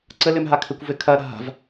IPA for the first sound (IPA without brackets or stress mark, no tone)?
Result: ǀ